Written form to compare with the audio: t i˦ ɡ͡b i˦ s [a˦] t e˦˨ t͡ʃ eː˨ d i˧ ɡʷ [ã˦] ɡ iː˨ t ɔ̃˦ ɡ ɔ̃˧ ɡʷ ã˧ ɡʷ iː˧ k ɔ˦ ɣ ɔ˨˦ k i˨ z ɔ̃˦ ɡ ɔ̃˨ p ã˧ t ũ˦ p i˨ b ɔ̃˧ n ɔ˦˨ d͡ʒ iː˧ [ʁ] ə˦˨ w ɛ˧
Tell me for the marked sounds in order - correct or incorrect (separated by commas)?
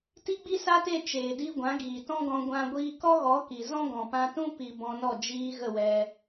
correct, incorrect, incorrect